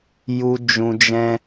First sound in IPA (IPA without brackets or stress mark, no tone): j